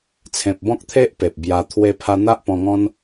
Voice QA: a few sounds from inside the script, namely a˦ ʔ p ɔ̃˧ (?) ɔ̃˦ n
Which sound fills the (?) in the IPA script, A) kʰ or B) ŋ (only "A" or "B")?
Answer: B